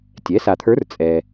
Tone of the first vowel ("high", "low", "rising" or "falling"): rising